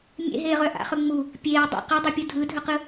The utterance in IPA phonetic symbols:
mʲḛɦeːʁœ ʔa̰χɵ ŋ͡mu | pʲeː dˤṵ qɵdˤʉpʲu dʱɯdʱɵqɯ

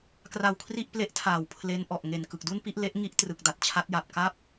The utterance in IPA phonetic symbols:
kra˧wkʰri˥˩ʔple˦˥ʔtʰaː˨˩w pʰle˦˥nʔɔ˨˩ʔ ŋe˨˩n kɯ˨˩k̚du˥˩npi˥˩ʔ le˦˥ʔŋi˦˥ʔ trɯ˨˩k̚da˥˩t̚t͡ɕʰa˦˥t̚ja˨˩p̚ ka˥˩p̚

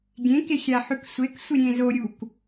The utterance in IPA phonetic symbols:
ɡʲẽ kexʲaħʉksʷek sʷiɾʲẽzo ɾʲuk

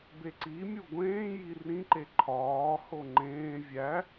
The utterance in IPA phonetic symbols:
beǀimʲu ɡʷẽːji rĩǃe ǃʰɒːho ŋ͡ǃẽː vʲæ

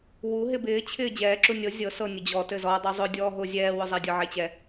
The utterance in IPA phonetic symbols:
wuɦɪ bɪːt͡ɕʰɪː d͡ʑɛːǁu nʲɤ zʲɤ sɤ nʲʊd͡ʑɔ tɘzɔ dˤuzˤʊ dʲɔːɦʊ zʲɛːwʊzˤedʲɤ ʕet͡ɕɛ

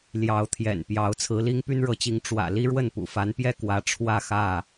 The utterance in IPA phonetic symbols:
ljɑ˨˦ʊ̯t̪ʰjɛ̰˨˩npjɑ˨˦ʊ̯ t͡sʰɹ̩˨˦li˦ŋ py˦nɻɤ˨˦t͡ɕi˨˦ŋ ʈ͡ʂwä̰˨˩ li˦ ɻwə˥˨npṵ˨˩fa˨˦npjɛ˥˨ kwä˨˦ʈ͡ʂʰwä˥˨ xä˥˨

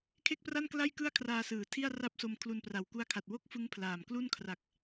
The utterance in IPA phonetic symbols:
kʰe˥˩k̚pra˥˩nkla˥˩j kɯ˥˩a̯kʰraː˧sɯː˩˦ tʰi˥˩a̯ra˥˩p̚so˧m kʰlu˧npra˨˩wku˦˥a̯kʰa˨˩t̚ wo˥˩k̚fɯ˦˥ŋpʰlaː˨˩m klu˥˩nkʰra˨˩k̚

